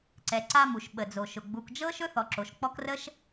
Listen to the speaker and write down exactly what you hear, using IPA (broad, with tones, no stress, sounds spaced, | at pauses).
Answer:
ǀ ɛ˨ ǀ a˦ m u˩ ʃ ɓ ə˩ d͡z o˩ ʃ ʊ˩ ɡ͡b u˨ k d͡ʒ ɤ˥ ʃ ɵ˥ θ ɔ˨ ǁ o˩ ʃ k͡p ɔ˦ k r ə˥ ʃ